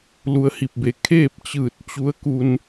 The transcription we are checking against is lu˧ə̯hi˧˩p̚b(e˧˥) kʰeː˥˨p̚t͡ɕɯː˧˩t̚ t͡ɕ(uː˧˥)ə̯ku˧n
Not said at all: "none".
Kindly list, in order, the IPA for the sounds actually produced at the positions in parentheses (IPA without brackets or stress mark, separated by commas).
e˧˩, u˧˥